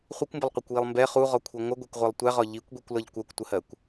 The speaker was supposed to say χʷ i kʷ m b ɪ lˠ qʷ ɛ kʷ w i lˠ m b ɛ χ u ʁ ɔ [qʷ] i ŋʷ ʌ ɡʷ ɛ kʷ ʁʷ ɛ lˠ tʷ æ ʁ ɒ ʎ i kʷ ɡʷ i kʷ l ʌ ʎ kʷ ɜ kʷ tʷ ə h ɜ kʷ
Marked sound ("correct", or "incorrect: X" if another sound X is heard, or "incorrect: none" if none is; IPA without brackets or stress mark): incorrect: kʷʰ